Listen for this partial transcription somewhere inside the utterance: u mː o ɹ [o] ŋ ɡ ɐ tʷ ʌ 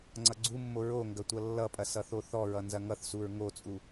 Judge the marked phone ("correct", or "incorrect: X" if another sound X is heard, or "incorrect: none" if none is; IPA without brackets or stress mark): correct